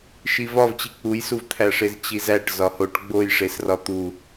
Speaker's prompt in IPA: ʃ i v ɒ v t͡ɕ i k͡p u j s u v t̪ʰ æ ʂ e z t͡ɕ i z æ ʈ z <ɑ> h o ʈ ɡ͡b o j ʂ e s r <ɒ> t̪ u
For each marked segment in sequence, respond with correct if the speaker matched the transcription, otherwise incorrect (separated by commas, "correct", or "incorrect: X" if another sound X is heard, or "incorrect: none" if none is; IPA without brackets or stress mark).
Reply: incorrect: ɒ, correct